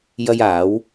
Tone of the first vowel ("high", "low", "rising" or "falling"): high